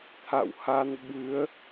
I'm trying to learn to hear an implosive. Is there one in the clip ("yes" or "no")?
yes